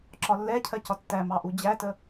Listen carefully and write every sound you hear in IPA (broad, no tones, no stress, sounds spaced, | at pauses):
ǁ ɒ lː ɛ cʰ ɜ c ɒ tː æ m ɑ ʔ u d͡ʑ æ t ə